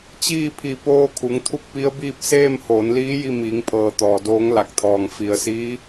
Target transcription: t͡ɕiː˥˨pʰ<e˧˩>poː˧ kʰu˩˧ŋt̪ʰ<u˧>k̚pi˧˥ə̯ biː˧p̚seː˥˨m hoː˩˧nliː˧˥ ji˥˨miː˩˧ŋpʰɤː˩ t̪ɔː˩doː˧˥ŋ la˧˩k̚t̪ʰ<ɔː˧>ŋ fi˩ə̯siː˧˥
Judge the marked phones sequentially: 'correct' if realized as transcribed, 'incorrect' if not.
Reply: incorrect: i˧˩, incorrect: u˥˨, incorrect: ɔː˩

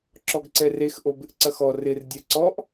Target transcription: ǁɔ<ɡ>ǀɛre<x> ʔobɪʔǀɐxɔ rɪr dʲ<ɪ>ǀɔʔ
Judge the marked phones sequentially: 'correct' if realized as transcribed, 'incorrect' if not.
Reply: correct, correct, incorrect: ɛ

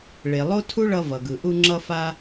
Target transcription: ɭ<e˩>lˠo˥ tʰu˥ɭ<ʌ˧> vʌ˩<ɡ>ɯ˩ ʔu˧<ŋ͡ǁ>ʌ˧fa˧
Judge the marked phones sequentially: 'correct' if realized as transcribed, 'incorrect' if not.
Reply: correct, correct, correct, correct

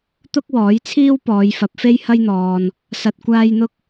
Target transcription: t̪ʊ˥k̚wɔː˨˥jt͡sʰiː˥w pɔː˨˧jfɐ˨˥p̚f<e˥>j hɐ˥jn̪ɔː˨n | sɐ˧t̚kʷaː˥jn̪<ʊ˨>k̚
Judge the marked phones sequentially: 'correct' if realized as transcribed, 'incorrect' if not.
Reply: correct, incorrect: ʊ˥

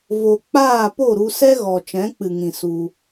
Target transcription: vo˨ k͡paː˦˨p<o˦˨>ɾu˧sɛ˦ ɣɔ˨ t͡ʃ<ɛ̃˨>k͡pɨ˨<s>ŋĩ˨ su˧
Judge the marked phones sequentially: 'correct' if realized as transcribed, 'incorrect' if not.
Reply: correct, incorrect: ɛ̃˨˦, incorrect: none

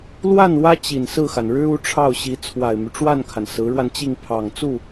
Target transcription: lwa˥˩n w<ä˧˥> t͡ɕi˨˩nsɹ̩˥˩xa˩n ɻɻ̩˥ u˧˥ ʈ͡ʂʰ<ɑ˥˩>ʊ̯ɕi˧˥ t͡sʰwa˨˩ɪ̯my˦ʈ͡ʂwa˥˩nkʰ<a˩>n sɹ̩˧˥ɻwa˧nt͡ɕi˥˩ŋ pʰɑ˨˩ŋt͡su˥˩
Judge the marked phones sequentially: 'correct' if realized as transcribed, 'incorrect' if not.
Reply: incorrect: ä˥, correct, correct

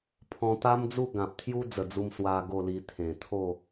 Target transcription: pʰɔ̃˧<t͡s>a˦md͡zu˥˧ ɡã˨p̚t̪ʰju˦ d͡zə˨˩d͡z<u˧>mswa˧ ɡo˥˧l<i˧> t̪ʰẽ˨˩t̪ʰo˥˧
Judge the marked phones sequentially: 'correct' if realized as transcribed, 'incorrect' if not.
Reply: incorrect: t̪, correct, correct

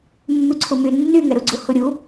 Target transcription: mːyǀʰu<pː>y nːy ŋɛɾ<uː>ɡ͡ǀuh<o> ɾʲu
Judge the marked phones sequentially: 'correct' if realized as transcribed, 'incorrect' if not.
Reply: incorrect: m, incorrect: u, incorrect: u

